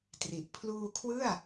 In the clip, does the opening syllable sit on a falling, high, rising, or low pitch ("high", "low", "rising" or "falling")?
low